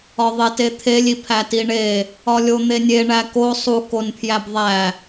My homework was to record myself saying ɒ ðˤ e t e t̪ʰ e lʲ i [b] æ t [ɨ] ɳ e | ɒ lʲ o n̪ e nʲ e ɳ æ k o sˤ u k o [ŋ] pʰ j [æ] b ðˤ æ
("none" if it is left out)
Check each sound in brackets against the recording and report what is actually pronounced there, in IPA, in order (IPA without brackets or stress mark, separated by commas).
pʰ, i, n, æ